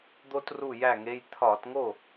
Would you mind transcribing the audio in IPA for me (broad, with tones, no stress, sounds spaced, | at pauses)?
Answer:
d̪ o˥ t r u˥˩ j æ˥˩ ŋ e˧˥˧ j t̪ʰ ɒ˧˩˧ t ŋ o˥˩